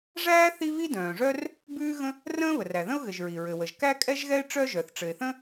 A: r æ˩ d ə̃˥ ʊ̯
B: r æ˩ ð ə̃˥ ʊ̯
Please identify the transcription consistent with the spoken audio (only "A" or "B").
B